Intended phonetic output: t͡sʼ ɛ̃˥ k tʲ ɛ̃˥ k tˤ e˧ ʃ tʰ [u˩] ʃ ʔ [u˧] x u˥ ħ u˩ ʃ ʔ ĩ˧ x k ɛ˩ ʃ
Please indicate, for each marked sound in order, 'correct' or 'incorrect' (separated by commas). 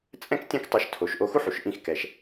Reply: incorrect, incorrect